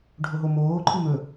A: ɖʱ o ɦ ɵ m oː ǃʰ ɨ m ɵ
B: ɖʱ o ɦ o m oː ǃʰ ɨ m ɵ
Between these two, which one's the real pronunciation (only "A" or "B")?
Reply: B